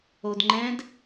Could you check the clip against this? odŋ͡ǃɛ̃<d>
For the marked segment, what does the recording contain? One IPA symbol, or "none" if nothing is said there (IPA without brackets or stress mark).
d